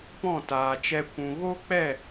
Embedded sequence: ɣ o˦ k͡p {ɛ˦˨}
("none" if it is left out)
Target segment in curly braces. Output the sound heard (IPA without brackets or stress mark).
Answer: ɛ˦˨